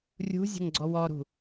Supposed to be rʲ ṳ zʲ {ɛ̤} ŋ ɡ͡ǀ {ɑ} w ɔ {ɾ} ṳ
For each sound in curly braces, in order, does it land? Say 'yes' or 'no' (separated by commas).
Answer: no, no, yes